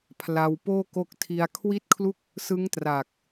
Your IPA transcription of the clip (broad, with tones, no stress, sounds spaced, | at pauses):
pʰ l a˧ w p oː˥˩ k o˦˥ k̚ tʰ i˧ a̯ kʰ w i˥˩ t̚ kʰ l u˥˩ k̚ | s ɯ˦˥ ŋ t r a˨˩ k̚